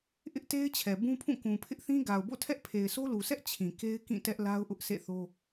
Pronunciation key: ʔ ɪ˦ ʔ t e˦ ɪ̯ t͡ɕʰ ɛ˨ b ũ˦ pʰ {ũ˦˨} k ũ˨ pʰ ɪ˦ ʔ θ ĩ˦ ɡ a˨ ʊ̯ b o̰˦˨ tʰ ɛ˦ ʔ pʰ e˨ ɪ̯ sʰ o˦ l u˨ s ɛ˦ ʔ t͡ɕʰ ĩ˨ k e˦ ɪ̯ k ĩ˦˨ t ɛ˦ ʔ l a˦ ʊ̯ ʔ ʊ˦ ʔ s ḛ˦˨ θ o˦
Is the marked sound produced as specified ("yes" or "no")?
yes